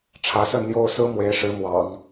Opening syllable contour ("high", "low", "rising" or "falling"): rising